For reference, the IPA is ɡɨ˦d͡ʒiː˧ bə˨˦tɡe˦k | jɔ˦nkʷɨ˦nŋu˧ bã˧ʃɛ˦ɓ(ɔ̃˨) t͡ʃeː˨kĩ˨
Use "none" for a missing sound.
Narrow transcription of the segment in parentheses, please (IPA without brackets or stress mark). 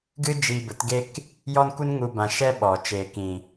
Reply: ɔ˨